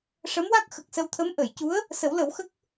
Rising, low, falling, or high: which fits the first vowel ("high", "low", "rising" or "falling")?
rising